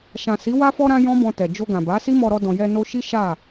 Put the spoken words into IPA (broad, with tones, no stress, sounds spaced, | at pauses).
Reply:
ʃ ã˨ s i˨˦ w a˧ f ɔ˧ ɾ ã˧ j ɔ̃˦ b ɔ̃˧ t ɛ˨ d͡ʒ o˧ ɡ ã˨ b a˨˦ s i˦ m ɔ˧ ɾ ɔ˧ d ɔ̃˨ j ɛ˧ n o˧ ʃ i˦ ʃ a˦˨